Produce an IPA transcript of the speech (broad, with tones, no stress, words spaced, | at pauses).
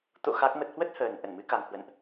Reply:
t̪o̰˧˨ xa˦˥k̚mə˦˥t̚ hwə˦˥t̚həː˨˩n ʔə˧˩nmɨ˨˦ka˨˩ŋ hwə̰˧˨nʔ